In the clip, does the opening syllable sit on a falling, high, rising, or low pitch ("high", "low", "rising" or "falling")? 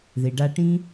low